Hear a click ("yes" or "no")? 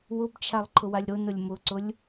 yes